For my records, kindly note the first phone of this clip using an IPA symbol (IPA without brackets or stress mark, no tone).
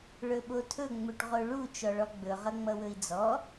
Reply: ɭ